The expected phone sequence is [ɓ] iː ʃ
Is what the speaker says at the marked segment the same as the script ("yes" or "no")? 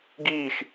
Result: no